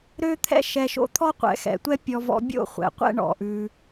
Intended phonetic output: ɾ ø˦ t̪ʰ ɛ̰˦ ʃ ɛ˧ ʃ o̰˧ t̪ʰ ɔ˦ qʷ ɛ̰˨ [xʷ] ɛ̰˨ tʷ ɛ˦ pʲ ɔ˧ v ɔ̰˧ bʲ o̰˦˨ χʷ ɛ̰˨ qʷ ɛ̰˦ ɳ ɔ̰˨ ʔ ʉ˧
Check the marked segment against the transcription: incorrect: x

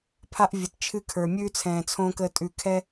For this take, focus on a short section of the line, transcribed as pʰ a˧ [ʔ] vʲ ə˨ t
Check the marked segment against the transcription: correct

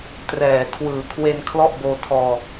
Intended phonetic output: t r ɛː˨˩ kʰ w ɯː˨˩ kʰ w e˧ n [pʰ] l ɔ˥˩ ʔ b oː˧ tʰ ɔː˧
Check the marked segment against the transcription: incorrect: kʰ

